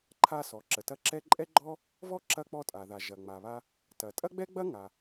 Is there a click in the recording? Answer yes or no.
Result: yes